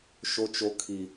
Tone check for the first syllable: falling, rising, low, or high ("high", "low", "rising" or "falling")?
high